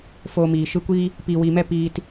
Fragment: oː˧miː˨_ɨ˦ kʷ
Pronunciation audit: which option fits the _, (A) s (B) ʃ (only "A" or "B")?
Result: B